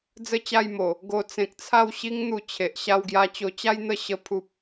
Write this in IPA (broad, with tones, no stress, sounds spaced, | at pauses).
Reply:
d͡z ə˦ t͡ɕ a˥˧ j m o˨˩ | ɡ o˧ t͡s ẽ˨ k̚ t͡sʰ a˥˧ w ɕ i˦ ŋ n̪ u˧ t͡ɕʰ e˨ ʔ ɕ a˧ w ɡ j a˧ t͡ɕ o˧ t͡ɕ a˦ j n̪ ə˥˧ ɕ ə˧ pʰ u˦ p̚